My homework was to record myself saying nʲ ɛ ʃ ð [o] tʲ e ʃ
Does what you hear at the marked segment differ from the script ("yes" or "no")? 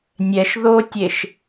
no